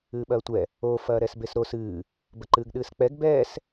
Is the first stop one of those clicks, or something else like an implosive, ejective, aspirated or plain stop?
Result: implosive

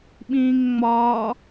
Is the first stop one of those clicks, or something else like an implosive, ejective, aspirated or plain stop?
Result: implosive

